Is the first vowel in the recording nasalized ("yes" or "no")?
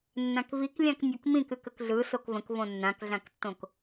yes